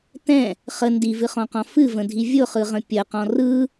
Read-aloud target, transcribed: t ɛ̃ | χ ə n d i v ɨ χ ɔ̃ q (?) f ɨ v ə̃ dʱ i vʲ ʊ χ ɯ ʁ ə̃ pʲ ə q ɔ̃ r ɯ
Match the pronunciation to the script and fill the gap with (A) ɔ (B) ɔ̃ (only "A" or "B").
B